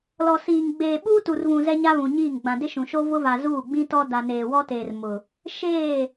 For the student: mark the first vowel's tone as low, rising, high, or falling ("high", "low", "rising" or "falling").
low